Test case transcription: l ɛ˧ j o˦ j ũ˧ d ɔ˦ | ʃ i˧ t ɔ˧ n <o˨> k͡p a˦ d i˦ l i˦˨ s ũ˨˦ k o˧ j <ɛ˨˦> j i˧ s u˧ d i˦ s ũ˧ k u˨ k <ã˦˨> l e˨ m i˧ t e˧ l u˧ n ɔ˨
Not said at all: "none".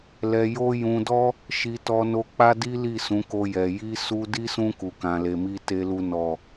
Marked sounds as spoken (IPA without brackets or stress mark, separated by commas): o˧, ɛ˨, ã˨